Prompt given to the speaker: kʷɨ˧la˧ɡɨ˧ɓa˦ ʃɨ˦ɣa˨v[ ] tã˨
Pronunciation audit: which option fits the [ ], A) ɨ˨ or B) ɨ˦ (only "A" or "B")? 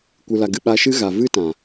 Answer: B